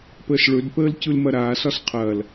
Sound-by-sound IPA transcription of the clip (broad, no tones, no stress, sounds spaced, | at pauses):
p əː s ɭ ɵ d p əː l c ɯ l m ɐ ɾ aː s ɒ s qʰ ɐː l